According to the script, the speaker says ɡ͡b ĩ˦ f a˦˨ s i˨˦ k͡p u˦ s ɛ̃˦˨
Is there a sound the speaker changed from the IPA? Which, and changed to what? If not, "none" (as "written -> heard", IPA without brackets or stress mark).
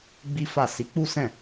ĩ˦ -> i˦